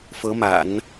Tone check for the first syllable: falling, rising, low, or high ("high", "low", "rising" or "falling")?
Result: rising